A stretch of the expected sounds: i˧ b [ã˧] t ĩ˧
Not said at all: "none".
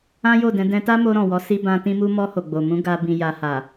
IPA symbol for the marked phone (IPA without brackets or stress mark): ã˧